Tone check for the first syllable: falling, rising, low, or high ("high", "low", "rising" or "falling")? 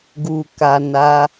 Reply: low